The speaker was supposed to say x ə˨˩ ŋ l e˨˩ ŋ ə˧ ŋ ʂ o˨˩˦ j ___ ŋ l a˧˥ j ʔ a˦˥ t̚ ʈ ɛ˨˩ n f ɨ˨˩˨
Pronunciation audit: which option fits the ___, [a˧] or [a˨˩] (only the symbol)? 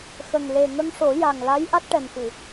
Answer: a˨˩